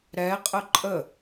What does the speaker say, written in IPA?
ɾ ɛ qʼ ə ǃʼ ə

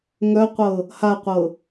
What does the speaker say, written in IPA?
ŋ œ qʷ ɤ | h a qʷ ɤ

